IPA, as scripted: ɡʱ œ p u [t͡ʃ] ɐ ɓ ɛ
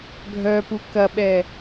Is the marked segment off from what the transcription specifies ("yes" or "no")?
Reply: yes